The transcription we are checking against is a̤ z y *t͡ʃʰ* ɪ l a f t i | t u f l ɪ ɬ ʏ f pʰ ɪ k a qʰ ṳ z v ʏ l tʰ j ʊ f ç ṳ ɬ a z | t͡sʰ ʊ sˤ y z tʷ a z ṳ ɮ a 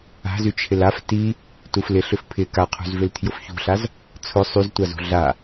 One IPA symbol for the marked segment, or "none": t͡ʃʰ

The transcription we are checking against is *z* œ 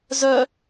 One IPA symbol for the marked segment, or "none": z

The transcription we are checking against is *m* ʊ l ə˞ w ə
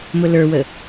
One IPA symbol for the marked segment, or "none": m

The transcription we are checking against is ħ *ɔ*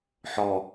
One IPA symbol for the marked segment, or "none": ɔ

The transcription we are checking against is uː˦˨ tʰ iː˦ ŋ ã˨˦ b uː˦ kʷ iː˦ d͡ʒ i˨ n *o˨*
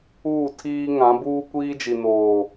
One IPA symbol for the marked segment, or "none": oː˨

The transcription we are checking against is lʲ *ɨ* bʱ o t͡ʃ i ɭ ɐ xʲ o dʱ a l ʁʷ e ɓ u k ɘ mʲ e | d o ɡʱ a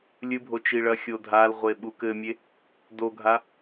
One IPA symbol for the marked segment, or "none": ɨ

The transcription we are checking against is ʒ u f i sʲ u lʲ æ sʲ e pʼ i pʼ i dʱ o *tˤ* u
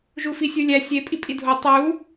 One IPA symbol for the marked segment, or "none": tˤ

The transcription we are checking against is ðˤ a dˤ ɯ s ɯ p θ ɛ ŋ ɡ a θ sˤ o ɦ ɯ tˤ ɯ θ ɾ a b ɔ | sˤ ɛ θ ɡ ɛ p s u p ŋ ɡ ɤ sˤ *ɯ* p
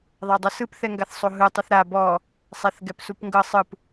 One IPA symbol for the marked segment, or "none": ɯ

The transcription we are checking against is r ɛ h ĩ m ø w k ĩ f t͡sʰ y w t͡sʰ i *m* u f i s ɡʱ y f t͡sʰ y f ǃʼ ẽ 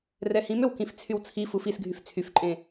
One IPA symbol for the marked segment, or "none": f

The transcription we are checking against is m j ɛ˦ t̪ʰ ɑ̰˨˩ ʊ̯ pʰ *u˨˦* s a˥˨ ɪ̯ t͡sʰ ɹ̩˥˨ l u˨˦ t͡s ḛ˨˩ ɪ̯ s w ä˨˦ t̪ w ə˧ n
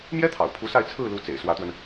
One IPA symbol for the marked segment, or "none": u˨˦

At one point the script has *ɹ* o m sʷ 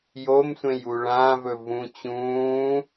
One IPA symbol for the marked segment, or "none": j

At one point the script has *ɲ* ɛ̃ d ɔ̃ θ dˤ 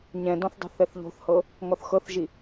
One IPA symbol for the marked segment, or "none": ɲ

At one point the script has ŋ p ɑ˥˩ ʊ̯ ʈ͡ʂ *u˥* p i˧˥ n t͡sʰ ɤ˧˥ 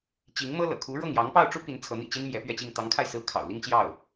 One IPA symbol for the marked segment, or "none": u˥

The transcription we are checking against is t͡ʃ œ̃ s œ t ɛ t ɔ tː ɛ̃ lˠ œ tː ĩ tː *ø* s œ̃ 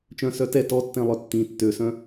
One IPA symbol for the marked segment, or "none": ø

